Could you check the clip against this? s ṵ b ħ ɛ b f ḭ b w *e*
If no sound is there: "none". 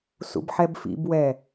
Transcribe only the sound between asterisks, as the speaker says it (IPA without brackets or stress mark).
ɛ